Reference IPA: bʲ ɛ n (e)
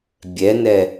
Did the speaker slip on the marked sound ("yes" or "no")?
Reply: yes